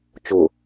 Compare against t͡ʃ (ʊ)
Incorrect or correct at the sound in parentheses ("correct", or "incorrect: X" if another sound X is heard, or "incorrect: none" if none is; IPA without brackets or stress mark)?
correct